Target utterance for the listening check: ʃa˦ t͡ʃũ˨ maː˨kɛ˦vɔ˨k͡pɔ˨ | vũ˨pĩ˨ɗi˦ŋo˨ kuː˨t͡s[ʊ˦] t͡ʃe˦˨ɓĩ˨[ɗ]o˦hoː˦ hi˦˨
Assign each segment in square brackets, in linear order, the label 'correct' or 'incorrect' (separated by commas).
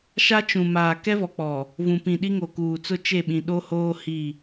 correct, correct